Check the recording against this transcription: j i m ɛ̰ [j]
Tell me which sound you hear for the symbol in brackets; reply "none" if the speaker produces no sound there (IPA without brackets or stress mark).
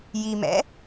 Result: none